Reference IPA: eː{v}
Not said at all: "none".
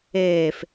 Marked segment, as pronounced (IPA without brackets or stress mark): f